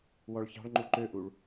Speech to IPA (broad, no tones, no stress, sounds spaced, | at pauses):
w ɔ ɭ ç ɑ̤ ɭ ŋ͡ǃ u ǃ ø ʔ u ɭ